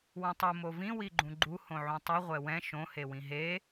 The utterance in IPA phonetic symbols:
wũtˤu movĩ wiɡ͡ǃũɡ͡ǃu hõʕũtˤu ʁʷɛwɛ̃ ʃõ hewĩɦe

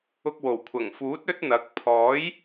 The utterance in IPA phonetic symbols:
ʊ˥k̚ wo˨˩wkʷʰɐ˨˩ŋfuː˨˥t̚ ɵ˥t̚n̪ɐ˨˥k̚ pʰɔː˨˥j

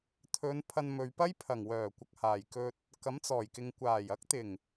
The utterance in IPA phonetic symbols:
t̪ʰɵ˨˧n pʰɐ˧nmɵ˨ɥpɐ˥j pʰɐ˨˩ŋ wœː˨˩kʷɐ˨k̚haː˨˩j kɵ˧t̚ | kɐ˨˥mt͡sɔː˨˩jkɪ˨ŋ kʷaː˨˩jɐ˨˥k̚t̪ɪ˨˩ŋ

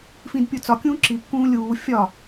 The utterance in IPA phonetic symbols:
fĩdpʲut͡sɒkʲũː ǁikːũː lʲuː fʲɒ

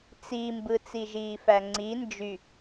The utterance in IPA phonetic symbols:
t͡simbɯ t͡siʒiːfæŋ͡ǀi nd͡ʒy

